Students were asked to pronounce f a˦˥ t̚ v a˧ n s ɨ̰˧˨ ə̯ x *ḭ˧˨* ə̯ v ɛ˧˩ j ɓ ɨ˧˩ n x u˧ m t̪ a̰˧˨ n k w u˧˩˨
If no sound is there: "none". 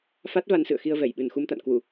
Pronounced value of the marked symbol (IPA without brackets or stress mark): i˧